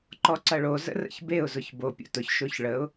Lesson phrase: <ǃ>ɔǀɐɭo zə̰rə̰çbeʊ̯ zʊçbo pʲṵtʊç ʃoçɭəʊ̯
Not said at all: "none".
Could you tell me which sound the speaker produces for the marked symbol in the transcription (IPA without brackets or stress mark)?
ǃ